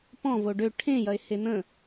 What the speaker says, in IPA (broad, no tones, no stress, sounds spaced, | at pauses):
p ɔ̃ v o ɖ ø ʈʰ ẽ j ɐ e̯ h e n̪ ə̃